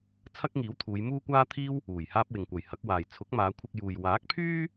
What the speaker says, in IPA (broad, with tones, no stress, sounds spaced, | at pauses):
t͡sʰ ɐ˥ k̚ ŋ iː˨˥ w t̪ʰ uː˨˧ j m uː˥ kʷ aː˥ t̪ʰ iː˥ w | uː˨˩ j h aː˥ p̚ w ɪ˨ ŋ kʷ ɐ˨ j h ɐ˨˥ k̚ w aː˨ j t͡sʰ ʊ˨˥ k̚ m aː˨˧ kʷʰ ɪ˧ k̚ j uː˨ j w aː˨˥ k̚ pʰ yː˥